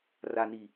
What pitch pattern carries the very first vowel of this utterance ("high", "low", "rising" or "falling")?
low